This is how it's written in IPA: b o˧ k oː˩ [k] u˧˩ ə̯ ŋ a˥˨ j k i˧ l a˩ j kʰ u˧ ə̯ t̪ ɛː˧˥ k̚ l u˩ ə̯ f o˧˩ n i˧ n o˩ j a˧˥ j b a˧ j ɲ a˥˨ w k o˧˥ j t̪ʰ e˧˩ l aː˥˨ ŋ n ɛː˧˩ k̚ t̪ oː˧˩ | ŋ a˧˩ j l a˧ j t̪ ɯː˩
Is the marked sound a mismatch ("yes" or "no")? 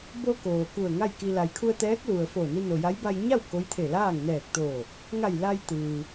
no